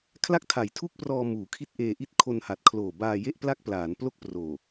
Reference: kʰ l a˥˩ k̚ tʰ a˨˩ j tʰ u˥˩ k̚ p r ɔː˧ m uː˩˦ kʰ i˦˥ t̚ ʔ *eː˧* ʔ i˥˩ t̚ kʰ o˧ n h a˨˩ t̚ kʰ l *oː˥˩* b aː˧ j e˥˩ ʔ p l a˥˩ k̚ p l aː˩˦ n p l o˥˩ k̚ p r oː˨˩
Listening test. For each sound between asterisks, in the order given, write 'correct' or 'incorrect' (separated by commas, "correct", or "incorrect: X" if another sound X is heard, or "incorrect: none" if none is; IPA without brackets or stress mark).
correct, incorrect: oː˨˩